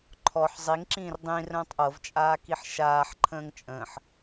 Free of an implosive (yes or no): yes